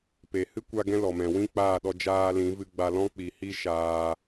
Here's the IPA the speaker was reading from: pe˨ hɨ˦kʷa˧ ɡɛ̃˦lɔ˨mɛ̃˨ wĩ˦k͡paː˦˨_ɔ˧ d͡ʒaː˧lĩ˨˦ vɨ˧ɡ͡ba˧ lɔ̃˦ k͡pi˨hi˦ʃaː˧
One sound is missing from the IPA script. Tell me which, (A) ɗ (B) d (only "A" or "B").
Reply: A